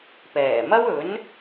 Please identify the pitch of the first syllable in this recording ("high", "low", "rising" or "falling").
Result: low